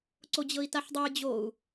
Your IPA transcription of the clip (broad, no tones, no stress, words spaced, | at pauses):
ǀod͡ʑɤi̯taħdˤoj d͡ʑou̯